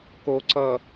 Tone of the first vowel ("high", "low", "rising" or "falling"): low